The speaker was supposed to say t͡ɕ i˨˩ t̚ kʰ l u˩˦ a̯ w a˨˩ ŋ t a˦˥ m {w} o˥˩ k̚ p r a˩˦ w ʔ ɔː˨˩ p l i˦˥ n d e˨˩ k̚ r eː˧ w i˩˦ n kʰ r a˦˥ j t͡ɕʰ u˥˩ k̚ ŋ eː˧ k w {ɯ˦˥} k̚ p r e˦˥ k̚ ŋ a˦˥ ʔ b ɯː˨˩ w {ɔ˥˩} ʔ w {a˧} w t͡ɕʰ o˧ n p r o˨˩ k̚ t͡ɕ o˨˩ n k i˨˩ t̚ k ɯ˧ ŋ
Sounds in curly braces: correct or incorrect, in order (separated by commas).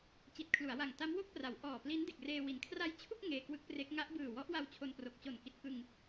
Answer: correct, correct, incorrect, correct